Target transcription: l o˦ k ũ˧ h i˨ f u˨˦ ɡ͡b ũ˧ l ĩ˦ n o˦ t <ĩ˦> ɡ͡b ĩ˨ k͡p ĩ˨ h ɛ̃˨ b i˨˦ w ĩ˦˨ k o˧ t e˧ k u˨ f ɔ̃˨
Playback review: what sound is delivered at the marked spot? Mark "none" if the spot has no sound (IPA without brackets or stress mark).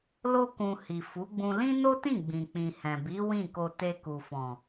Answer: ĩ˦˨